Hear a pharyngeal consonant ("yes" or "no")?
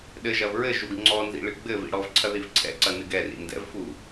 no